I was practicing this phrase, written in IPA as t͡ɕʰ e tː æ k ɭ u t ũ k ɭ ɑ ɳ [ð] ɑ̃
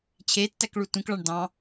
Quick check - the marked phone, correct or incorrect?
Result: incorrect: d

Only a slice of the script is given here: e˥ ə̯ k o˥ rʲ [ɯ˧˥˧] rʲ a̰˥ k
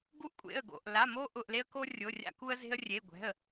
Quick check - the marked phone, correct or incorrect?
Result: incorrect: ʊ˧˥˧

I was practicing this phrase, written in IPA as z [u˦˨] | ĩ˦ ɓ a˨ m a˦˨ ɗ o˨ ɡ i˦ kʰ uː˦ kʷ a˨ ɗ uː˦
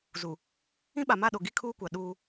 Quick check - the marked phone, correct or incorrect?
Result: incorrect: u˨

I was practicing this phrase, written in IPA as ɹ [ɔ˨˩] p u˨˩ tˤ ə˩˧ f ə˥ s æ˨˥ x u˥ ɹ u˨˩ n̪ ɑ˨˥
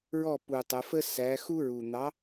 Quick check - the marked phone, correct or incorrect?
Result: incorrect: ɔ˥˩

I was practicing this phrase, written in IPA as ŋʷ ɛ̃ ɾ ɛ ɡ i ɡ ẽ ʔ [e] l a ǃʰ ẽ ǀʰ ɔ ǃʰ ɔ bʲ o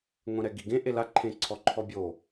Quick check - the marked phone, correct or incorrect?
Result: correct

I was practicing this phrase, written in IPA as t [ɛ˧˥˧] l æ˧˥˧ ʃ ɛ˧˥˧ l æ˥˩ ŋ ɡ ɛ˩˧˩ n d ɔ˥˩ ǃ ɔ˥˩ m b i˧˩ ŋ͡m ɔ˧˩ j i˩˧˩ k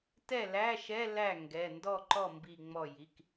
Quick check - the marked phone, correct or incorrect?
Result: incorrect: ɛ˥˩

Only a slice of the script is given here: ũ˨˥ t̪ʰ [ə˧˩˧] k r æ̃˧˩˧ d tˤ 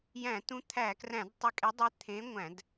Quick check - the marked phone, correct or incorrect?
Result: incorrect: æ˧˩˧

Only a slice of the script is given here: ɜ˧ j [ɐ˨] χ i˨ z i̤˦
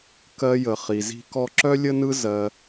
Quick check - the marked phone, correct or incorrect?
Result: incorrect: ə˨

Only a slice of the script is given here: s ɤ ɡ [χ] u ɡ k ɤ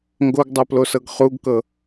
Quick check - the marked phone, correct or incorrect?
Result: correct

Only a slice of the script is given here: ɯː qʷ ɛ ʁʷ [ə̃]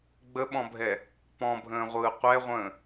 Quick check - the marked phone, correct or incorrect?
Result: incorrect: ə̃ː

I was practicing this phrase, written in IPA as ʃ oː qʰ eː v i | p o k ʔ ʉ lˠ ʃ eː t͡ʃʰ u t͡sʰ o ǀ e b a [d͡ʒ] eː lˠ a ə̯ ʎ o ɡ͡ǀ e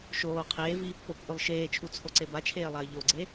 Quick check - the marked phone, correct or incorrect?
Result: incorrect: t͡ʃʰ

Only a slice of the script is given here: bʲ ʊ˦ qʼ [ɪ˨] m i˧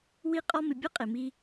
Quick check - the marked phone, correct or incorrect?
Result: correct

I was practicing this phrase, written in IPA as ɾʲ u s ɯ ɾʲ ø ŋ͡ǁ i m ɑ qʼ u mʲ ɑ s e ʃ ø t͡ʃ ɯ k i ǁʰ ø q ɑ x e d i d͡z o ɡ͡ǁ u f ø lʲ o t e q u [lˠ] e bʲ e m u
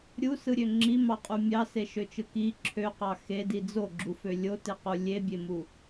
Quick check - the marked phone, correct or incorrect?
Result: incorrect: lʲ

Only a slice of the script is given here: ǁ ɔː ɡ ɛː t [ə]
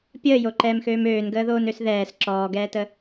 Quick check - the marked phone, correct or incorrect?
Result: correct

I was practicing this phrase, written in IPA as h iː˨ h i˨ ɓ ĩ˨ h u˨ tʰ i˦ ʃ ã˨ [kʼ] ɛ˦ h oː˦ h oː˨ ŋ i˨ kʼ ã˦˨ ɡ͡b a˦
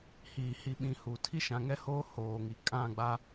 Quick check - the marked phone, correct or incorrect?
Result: incorrect: ŋ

